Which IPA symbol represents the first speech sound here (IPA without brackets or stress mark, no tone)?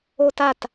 o